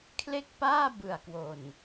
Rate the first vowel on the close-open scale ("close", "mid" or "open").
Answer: mid